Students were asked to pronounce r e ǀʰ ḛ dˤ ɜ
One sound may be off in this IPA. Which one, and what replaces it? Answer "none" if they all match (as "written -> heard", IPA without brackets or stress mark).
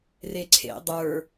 ɜ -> ə˞